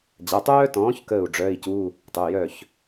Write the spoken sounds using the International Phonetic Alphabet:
d͡ʑ a˩˧˩ tˤ œː˥ t ɔ̃ː˨˥ ç k əː˥˩ u̯ ɖ͡ʐ œː˧˥˧ i̯ c u˧˥˧ | tˤ œ˩˧˩ j œ˥˩ ç

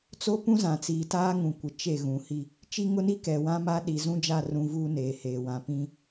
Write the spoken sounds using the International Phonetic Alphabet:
t͡s o˦ p ũ˦ z ã˨ t͡s iː˨ t aː˦ ŋ ũ˨ kʷ ɪ˨ t͡ʃ e˦˨ ɣ ũ˨ h i˦ | t͡ʃ i˦ ŋ ʊ˦ n i˦ k ɛ˨ w ã˦ m a˦ ɗ i˨ z ũ˦ d͡ʒ a˦˨ r ũ˨ v uː˦ n eː˨ h eː˨ w ã˨ p ĩ˦

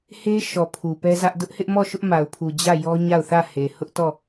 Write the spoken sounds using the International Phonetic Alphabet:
h e˦ ʃ ɔ˨ pʰ u˨ p ɛ˦ z ä˦ ʔ d ʊ˦ ʔ h ɪ˦ ʔ m ɔ˦˨ ʃ ʊ˦ ʔ m a˨ ʊ̯ pʰ u˨ d͡ʑ ä˦˨ j ɔ˦ ɲ a˦˨ ʊ̯ θ ä˦˨ h e˨ h ʊ˦ ʔ t ɔ˦˨

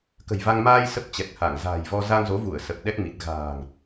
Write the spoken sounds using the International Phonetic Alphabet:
k ə̤˨˩ j v a˧ ŋ m aː˧ j s ə˦˥ p̚ t͡ɕ ɛ˨˩ k̚ h a˧˩ ŋ z a̤ː˨˩ j v ɔ˧ z a˧ ŋ z o˨˦ v u˧˩ ə̯ s ə˨˩ p̚ ɗ ɛ˦˥ k̚ m i˨˩ t̚ ɣ a̤ː˨˩ ŋ

